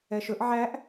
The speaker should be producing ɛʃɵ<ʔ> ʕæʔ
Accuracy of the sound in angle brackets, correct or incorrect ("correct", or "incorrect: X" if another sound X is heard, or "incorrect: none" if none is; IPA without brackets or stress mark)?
correct